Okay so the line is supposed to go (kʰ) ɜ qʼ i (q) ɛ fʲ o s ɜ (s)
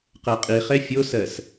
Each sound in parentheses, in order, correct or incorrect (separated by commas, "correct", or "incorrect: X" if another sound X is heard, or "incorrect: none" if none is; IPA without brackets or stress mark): incorrect: q, incorrect: χ, correct